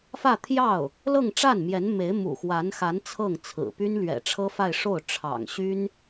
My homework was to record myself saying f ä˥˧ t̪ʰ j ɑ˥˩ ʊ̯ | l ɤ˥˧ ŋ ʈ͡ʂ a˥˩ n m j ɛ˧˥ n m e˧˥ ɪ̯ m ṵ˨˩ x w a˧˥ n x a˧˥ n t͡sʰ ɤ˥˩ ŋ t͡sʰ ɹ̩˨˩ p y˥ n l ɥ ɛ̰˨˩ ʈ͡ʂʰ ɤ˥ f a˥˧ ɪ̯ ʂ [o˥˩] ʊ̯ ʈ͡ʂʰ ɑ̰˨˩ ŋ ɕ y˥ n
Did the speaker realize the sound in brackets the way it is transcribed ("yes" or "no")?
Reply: yes